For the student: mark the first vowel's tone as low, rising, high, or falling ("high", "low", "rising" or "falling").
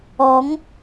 rising